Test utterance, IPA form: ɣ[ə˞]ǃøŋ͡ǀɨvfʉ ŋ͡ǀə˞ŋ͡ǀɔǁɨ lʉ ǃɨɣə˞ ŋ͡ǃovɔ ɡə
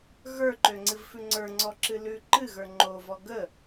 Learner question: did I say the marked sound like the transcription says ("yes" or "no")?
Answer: yes